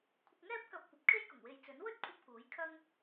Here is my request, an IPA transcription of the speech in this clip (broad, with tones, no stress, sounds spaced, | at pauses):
kʷʰ ɪ˧ k̚ ŋ ɛː˥ p̚ k ɐ˧ p̚ kʷ ɐ˨ p̚ kʰ e˥ j k ʊ˨˩ ŋ w e˨ j t͡s ɵ˨˥ n w ɵ˥ t̚ kʷʰ ɐ˧ p̚ k uː˨˥ j kʰ ɐ˥ ŋ